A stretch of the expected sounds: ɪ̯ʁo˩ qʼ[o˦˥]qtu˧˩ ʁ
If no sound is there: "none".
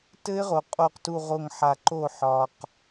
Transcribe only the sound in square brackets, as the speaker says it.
o˧˩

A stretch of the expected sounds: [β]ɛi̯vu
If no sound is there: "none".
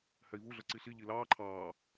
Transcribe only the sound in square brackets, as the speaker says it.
h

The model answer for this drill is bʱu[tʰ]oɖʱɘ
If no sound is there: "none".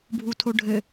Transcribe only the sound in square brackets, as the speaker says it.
tʰ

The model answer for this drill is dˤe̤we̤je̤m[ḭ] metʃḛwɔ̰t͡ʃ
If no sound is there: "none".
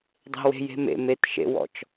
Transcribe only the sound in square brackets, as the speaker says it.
ḛ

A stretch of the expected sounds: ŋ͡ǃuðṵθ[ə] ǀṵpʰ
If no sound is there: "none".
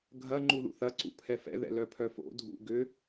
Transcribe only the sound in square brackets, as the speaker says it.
ɐ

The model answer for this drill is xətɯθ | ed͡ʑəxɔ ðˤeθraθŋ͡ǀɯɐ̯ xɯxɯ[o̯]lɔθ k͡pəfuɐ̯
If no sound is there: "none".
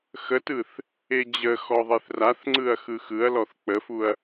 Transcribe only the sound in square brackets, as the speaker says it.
ɐ̯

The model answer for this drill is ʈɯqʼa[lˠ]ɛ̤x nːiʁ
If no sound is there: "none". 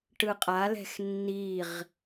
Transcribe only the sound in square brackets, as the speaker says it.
l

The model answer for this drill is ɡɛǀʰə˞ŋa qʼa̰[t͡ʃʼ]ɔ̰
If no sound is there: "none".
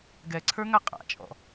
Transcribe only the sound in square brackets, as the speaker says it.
t͡ʃʼ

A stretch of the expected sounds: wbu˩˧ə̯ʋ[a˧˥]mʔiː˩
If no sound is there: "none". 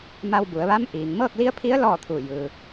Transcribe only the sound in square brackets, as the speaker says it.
a˧˥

